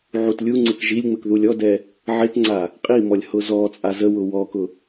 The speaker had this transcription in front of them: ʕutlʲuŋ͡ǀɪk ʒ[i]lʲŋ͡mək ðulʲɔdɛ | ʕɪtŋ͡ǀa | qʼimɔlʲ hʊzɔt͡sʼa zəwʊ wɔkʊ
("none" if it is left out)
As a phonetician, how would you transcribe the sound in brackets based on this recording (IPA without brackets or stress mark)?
i